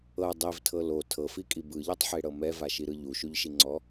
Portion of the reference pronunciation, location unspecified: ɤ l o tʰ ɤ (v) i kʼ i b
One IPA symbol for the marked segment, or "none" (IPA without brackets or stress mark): f